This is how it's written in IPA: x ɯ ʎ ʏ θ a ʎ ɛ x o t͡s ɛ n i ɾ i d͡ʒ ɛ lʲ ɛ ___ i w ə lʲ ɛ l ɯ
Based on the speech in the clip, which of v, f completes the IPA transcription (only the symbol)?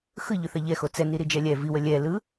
v